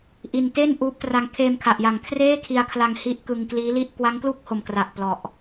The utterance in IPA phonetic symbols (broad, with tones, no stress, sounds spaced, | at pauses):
ʔ i˧ n t eː˥˩ n ʔ uː˦˥ p̚ t r a˧ ŋ kʰ eː˧ m kʰ a˨˩ ʔ j a˨˩ ŋ kʰ r eː˥˩ kʰ i˧ a̯ kʰ l a˧ ŋ h i˦˥ ʔ k ɯ˧ ŋ k l iː˦˥ l i˥˩ ʔ k w a˦˥ ŋ k l u˥˩ k̚ h o˨˩ m k r a˨˩ ʔ p l ɔ˨˩ ʔ